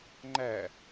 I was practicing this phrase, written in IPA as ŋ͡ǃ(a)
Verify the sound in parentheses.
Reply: incorrect: æ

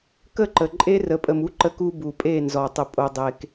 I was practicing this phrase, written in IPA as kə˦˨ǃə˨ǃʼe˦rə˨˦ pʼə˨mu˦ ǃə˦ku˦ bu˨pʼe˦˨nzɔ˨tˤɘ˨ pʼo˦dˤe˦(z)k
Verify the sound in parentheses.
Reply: incorrect: none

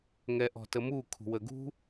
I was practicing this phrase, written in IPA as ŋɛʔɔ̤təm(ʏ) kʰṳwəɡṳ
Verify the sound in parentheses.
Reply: incorrect: u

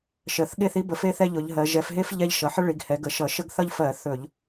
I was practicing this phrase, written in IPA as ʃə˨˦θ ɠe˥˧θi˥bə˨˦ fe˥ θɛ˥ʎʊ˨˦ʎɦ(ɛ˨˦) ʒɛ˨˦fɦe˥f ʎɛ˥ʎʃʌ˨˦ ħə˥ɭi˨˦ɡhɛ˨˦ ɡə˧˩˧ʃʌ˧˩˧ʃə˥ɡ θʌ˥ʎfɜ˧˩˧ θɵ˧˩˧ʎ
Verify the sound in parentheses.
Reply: incorrect: ɜ˨˦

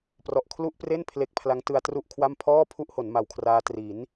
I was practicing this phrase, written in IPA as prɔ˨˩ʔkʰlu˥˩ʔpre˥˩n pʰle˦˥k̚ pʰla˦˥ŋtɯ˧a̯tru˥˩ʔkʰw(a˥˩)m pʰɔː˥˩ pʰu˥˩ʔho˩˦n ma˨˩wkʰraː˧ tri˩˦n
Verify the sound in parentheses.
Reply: correct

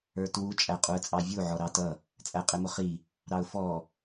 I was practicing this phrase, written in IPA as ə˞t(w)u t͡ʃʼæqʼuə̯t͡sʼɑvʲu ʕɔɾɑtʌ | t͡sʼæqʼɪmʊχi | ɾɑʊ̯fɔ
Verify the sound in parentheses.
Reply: correct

